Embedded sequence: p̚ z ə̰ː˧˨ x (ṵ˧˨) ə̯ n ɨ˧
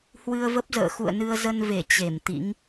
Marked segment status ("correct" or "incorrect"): correct